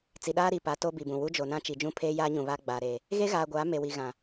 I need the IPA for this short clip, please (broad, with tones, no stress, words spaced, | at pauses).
t͡si˨ɗaː˦ɾi˨pa˨˦ to˦bi˨bũ˨ wu˦d͡ʒo˨nã˦ t͡ʃi˨d͡ʒũ˦pʰeː˦jaː˦ ɲũ˨βa˦ ɡ͡baː˨ ɾe˨ | ɣe˦ɣaː˨ɡʷaː˨˦ me˨wi˨ ɣã˨